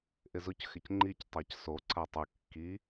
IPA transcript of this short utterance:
ʔ ɪ z ʊ c x ɪ c ŋ͡ǃ i c tˤ a c s o ǀ a tˤ ʊ kː i

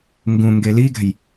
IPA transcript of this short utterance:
ŋ ɡ ũ ŋ ɡ e l i ɡ ɛ̤ j

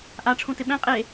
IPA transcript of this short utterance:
ʔ a ʈ͡ʂʰ ũ t ɪ ɓ ɛ̃ qʼ e

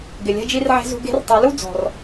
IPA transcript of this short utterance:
ɡ ɪ˩ lʲ ɛ̤˧ d͡ʒ i˧ r ʕ e̤˧ z ṳ˧ ɡ e̤˧˥ r tˤ i˩˧ l u˥ d͡z ɔ̤˩ r

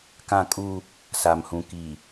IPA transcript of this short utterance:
k ã˦ kʼ u˦ | s a˨ m h ũ˨ k i˨

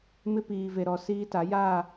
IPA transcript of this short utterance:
m ɪ˦ p iː˨ v e˨ ɾ ɔ˨ s iː˦ t a˨˦ j aː˦˨

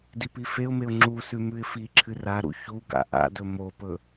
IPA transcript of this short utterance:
d i p i f e ʊ̯ m e ʊ̯ ŋ͡ǁ u s ʉ m ʉ ɪ̯ f i ǁʰ ɨ r a ɾ ṵ ç u ɡ a̰ ʔ a̰ d ɵ m o p ɵ

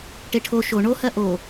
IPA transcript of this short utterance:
ʈ e ʈʰ o ʃ o ɳ o h ɜ ʔ o

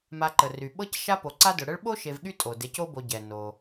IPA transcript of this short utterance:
m a˨ ǃ ə˩ r y˩ ɓ ɤ˦ c ʃ a˥ p o˨ ǀ a˥ d ʊ˨ ɽ ə˦ ɭ ɓ o˥ ʃ e˨ v ɠ y˦ tʼ o˩ d e˨ c o˦ b o˨ ɟ ɛ˩ n o˩

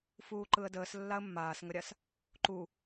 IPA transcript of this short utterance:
f uː ǃ ɯ ə̯ d əː s lː a ə̯ mː aː s ŋ ə ɾʲ a s | ǃ u

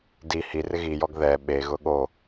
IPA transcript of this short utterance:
d i h i r ɪ ɣ i j ɔ ɡ ð ɛ ɓ e ɣ ʊ ɠ o

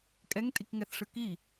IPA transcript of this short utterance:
kʼ ɛ ŋ tʼ i k ŋ ɛ θ ʂ ɯ k i

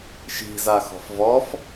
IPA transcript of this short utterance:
ʃ i̤ z a x ɔ̤ f v ɔ f

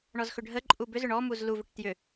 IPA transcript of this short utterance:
ɳ ɔ z x ʏ ɖʱ ə ǃʼ u b ʏ z ʏ ɳ ɔ m u z l u v ʏ ʈ t j ʏ

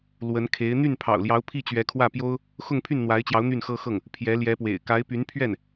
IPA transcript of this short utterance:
l w ə˧˥ n kʰ e˧˥ ɪ̯ n̪ y˥˩ n pʰ ɑ̰˨˩ ʊ̯ l j ɑ˧˥ ʊ̯ pʰ i˥˩ t͡ɕ ɥ ɛ˧˥ kʰ w ä˥˩ p j o˥ ʊ̯ | x ʊ˥˧ ŋ pʰ y˥˩ n n̪ w a˧˥ ɪ̯ t͡ɕ j ɑ˧˥ ʊ̯ n̪ y˥˩ n x ɤ˥ x ɤ˥˩ ŋ | pʰ j ɛ˧˥ l j ɛ˧˥ p w ḛ˨˩ ɪ̯ k a˧˥ ɪ̯ p y˧˥ n pʰ ɥ ɛ˥˩ n

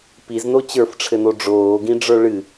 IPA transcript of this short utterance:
p i z n o t͡ɕ ə˞ f ʈ͡ʂʰ ɘ n o ɖ͡ʐ oː ɡ ĩ ɖ͡ʐ ə˞ ɭ ɨ

